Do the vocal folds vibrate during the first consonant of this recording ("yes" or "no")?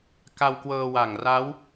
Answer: no